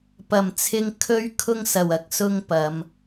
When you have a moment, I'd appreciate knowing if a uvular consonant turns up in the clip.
no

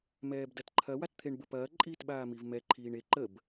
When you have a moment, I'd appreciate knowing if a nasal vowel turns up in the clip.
no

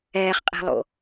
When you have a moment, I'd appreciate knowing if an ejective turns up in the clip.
yes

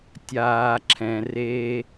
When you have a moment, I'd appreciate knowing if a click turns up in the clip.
yes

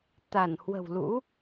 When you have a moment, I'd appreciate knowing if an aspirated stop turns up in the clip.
no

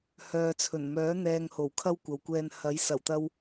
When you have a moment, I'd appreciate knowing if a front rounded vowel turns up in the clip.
yes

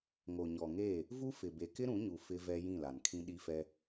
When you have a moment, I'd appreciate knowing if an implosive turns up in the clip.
yes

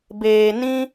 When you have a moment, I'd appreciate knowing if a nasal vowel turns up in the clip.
yes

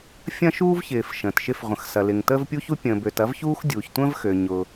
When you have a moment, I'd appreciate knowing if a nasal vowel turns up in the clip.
yes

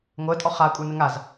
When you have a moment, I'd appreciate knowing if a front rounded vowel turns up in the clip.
no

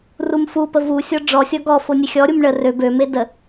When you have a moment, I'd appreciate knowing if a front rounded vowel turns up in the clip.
yes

